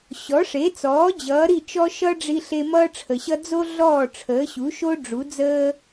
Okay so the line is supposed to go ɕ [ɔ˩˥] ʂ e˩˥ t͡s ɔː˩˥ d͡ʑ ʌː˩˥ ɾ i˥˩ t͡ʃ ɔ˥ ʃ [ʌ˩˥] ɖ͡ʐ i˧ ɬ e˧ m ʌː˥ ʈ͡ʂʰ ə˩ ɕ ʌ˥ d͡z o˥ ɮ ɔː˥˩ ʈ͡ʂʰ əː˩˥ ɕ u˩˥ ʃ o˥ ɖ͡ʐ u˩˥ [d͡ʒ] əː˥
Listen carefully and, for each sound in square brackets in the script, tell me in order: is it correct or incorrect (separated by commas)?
correct, incorrect, incorrect